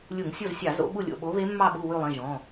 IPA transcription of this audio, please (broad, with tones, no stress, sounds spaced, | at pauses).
lʲ u˧˩˧ ŋ sʲ o˦˨ z sʲ ɑ˧˩˧ z o̰˨˦ ɓ u˦˨ lʲ o̰˩˧˩ ɓ o˨˦ β e˨˦ mː ɑ˦˨ ɓ u˦˨ w ʉ˦˨ lˠ ẽ˩˧˩ ʒ ɔ̃˩˧˩